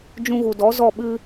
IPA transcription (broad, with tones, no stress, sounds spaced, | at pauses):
d͡ʒ ũ˧ ɣ u˨ d ɔ˨˦ z ɔ˦˨ ɓ ɨ˦